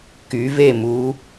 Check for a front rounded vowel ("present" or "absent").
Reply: present